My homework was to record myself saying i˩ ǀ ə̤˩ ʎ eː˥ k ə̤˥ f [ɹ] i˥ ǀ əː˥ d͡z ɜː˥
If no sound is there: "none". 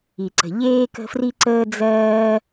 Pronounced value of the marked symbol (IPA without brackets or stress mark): r